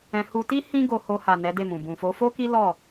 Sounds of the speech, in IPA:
ɛ̃˧ h u˧ t i˦ h ĩ˦ ɡ o˧ h o˧ h a˨ n ɛ˨˦ d e˦˨ m ũ˨ b ũ˨ f o˨˦ f o˦ k i˦ l ɔ˦˨

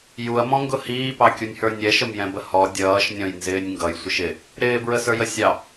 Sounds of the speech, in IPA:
j u ɐ̯ m ɔ̃ ŋ ɡ ʊ h iː p ɑ kʲ u nʲ h ə˞ nʲ ɛ ʃ ə m j ɛ̃ b ə h ɔ dʲ ʌː ʃ nʲ ɔ̃ j n z ɪː nʲ ŋ ɡ ʌ j sʷ ɪ ʃ ɪ | ɾ ɪː b ɹ ə s ə˞ j ə sʲ ɑ

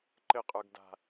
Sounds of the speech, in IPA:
ǃ ɘ qʼ ə˞ ɡ d a̤

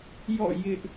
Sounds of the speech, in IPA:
j ɔ̰˦˨ j ɪ˦ ʔ

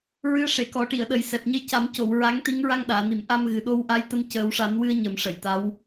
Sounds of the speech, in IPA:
ɹ ɨ˧˥ ə̯ ʂ e˨˩˨ k ɔ˨˩˦ ʈ i˨˩˨ ə̯ ɗ ə˨˩ j s ɛ˨˩ p̚ ɲ ə˧ j c a˨˩˦ m c o˨˩˨ w ɹ a˧˥ ŋ t̪ i˧˥ ŋ ɹ a˧ ŋ ɗ aː˨˩˨ n i˨˩˨ m ʔ a˧ m ɣ ɨ˨˩ ɗ o˧ w ʔ a˧˥ j t̪ ə˧ m c əː˨˩˦ w ʂ a˨˩˦ n w ɨ˧ ə̯ ɲ ə˨˩˦ m ʂ ə˨˩˨ j t̪ a˧˥ w

